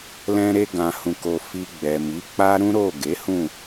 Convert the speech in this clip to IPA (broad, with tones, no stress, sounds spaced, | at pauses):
l ɛ̃˧ ɾ e˧ ɡ ã˨ h ũ˨ k o˨ f i˧ ɡ͡b ɛ˨ m i˨˦ k͡p a˦ ɾ ũ˦ ɾ o˦˨ ɡ e˨˦ h ũ˦˨